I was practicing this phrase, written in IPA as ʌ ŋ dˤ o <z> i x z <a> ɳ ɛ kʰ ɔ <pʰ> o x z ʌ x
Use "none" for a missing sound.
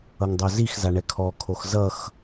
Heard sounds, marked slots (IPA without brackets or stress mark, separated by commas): z, a, kʰ